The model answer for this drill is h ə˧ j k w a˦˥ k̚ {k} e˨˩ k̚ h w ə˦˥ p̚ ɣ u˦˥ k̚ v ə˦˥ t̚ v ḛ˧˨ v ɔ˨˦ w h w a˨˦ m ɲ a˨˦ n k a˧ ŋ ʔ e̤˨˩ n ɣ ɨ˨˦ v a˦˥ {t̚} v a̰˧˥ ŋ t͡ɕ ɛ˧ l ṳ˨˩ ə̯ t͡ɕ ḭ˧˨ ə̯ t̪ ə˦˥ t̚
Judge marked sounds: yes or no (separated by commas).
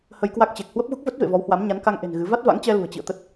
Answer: no, yes